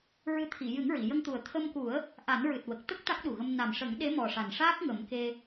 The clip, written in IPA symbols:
ɹɨ˧˥ t̪ʰi˨˩˨ jɨ˨˩˦ŋɹi˨˩˨ jə˧ŋt̪u˨˩ə̯ t̪ʰə˧mku˨˩˦ə̯ | ʔa˨˩˦nɹɨ˨˩t̚ wə˨˩k̚ t̪ə˦˥k̚ t̪a˦˥k̚ɗu˨˩ɣə˧m na˨˩mʂə˨˩˦ŋ ɗe˧˥mɔ˨˩ʂa˨˩nʂaː˦˥k̚ ŋə˨˩˦mke˧

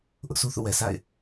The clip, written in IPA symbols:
ʔʊ˦ʔsʰu˦θṵ˦˨ wɛ˨sʰa̰˦˨ɪ̯

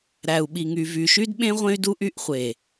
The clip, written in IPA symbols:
ɾæ˨u̯ɓi˨ ŋy˨vy˨ʃy˦d ɓẽ˦ ʁʷẽ˦y̯du˦ʔy˦ʔχʷe˨

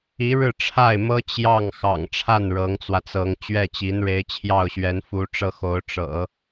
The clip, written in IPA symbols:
i˧˥ ɻɻ̩˥˧ʈ͡ʂʰa˥˩ɪ̯mɤ˥ t͡ɕjɑ˥˩ŋ xɑ̰˨˩ŋʈ͡ʂʰa˥˩n ɻɤ˧˥ŋt͡swä˧t͡sɤ˧˥ŋ t͡ɕɥɛ˥˩t͡ɕi˧˥nɻe˧˥ɪ̯ t͡ɕʰjɑ˥˩ʊ̯ɕɥɛ˧˥n fu˥ʈ͡ʂɤ˥xo˧˥ʊ̯ ʈ͡ʂɤ̰˨˩˦

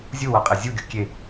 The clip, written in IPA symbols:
zʲuwaqʼɛ zʲuɡʲo kʲe

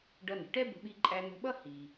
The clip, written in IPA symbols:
ɖʌ˧nə̤˩ʈɛ˥ bə̤˧ɓi˧ ǃʼæ˧n̪ə̤˧ɓʌ˥ hi˩

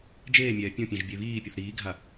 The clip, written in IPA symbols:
d͡ʒeːmʲɛː pʲõpʲɛ̃ʒ bʲeβiːpʲuθ ɾiːɡʱa

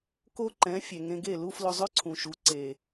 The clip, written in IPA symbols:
ko˥ǃɛ̃˩˥ fʲɛ˩ŋẽ˧ɡe˥˩ lu˥ flʊ˧ zˤœ˥ǀʰũ˩ ʃu˩˥ǀe˩

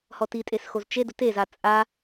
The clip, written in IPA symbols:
hɔtitʼesxoz t͡ʃedʊ teza t͡sʼa

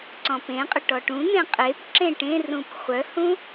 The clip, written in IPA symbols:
ǀɔ̃pẽqʼʏ ʈɔʈũn̪ẽ qʼep ǁẽʈẽrũp χʷœhũ

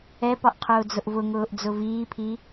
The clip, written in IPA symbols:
ɛpɒʔqʰʊː d͡zʊʔvʊŋʊːʔd͡zʊ viːpʰi

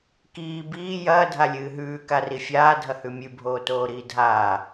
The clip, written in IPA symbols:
kiː biː jɐː dʱalʲɨːɦʉː karifʲaː dʱɐhʉmʲʉ bʱoːtoːɾiːdʱaː

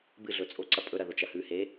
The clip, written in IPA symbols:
bɨɮɵ t͡sʼoǀɐ pʼɵɾɐ ðot͡ʃɐhʉhe

